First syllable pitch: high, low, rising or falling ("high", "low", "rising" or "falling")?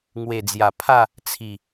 low